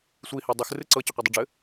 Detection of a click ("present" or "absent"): present